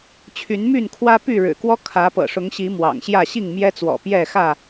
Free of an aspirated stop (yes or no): no